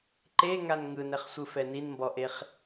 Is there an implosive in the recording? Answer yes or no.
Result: no